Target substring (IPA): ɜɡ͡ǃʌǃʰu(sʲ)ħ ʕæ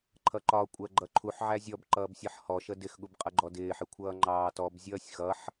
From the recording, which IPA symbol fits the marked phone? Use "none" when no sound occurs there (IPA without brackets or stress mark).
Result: none